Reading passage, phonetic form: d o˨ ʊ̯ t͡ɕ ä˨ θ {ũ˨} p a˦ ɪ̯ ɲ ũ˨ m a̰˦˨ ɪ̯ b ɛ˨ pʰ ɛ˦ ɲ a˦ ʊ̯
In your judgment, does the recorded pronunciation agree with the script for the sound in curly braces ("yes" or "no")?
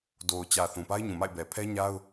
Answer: yes